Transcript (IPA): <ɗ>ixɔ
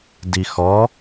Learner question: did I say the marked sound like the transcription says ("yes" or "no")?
no